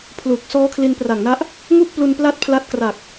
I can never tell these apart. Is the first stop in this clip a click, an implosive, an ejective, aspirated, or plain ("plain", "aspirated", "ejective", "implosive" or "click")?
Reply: aspirated